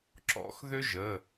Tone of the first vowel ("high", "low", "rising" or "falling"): high